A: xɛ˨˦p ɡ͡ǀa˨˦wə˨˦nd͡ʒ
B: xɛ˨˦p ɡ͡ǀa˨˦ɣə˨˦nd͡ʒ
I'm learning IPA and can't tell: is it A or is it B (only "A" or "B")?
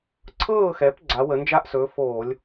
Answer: A